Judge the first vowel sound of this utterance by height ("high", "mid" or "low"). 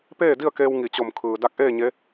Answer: mid